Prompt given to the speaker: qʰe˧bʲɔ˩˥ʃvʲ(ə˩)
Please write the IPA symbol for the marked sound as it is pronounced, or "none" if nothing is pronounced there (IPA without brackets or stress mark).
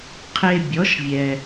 ɛ˩